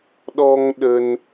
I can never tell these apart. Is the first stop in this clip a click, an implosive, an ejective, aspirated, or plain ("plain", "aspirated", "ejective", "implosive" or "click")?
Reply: implosive